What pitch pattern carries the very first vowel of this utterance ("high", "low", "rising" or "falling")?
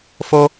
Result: high